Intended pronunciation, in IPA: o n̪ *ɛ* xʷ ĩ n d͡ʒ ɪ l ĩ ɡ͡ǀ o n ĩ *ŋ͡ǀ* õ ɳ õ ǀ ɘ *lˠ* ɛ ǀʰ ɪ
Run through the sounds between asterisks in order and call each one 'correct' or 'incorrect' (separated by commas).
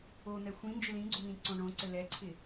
correct, incorrect, incorrect